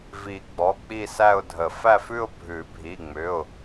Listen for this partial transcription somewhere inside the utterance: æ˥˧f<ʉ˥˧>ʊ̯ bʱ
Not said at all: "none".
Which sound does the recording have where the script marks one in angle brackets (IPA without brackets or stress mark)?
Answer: ʉ˥˧